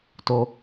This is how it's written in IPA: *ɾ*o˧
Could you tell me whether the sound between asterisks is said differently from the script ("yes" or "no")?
yes